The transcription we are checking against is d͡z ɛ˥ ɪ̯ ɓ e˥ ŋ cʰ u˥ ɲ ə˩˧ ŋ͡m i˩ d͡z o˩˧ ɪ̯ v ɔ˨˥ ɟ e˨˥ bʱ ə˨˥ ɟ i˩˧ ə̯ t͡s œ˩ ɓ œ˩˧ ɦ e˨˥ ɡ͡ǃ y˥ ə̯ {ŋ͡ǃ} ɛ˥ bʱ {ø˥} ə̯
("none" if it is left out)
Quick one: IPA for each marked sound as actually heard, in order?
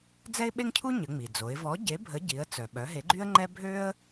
ŋ͡ǃ, ø˥

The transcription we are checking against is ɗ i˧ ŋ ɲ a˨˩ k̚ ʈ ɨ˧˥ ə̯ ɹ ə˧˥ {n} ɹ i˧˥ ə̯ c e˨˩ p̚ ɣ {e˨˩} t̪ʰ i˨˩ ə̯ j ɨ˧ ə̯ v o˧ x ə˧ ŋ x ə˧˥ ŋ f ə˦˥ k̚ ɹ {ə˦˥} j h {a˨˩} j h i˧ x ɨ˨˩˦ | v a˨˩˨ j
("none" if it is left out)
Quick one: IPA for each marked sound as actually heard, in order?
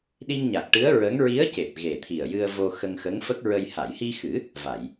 ŋ, e˨˩, ə˧, a˨˩˨

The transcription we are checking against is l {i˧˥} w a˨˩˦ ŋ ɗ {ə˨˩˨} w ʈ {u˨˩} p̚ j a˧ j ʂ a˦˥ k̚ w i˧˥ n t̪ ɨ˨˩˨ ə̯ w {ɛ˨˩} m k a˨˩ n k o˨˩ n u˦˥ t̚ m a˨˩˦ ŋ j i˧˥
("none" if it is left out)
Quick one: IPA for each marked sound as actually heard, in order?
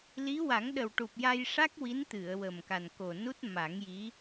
i˧˥, ə˨˩, u˨˩, ə˨˩

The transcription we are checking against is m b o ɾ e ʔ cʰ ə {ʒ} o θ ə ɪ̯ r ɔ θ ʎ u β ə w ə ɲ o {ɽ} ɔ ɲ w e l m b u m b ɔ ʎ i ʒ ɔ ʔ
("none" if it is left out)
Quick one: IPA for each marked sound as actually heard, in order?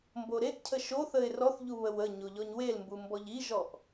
ʃ, ʎ

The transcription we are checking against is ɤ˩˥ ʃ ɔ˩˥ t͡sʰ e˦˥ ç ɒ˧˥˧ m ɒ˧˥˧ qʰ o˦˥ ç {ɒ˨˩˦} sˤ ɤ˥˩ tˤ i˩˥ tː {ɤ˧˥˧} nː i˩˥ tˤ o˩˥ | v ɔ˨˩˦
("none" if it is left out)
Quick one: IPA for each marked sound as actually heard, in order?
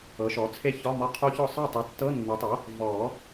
ɒ˥˩, ɤ˧˥˧

